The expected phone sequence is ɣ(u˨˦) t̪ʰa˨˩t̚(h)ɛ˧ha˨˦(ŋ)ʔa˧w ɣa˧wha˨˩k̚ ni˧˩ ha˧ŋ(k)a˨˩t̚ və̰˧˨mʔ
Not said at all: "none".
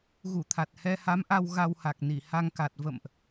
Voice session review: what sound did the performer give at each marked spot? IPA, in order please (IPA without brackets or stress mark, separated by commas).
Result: u˧˩, h, m, k